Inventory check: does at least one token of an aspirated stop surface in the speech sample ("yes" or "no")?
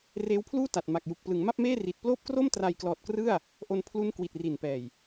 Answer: yes